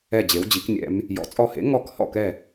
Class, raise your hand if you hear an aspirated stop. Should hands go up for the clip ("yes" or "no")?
no